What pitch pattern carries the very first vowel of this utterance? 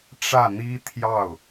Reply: falling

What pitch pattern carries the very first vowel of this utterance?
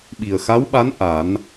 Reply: low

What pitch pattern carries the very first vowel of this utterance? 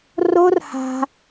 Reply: high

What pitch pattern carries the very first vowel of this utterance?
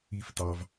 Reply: low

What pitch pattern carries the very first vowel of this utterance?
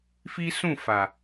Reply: high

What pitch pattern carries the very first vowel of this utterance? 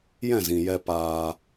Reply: falling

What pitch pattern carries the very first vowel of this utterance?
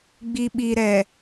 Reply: low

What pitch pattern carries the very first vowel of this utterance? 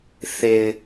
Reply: low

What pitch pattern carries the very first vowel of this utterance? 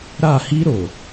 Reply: falling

